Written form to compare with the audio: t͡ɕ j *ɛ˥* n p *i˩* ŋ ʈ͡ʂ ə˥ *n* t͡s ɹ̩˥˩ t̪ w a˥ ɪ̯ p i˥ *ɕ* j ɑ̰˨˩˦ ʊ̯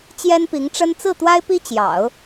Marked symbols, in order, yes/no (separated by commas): yes, no, yes, no